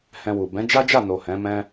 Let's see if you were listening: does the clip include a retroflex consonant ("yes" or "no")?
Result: no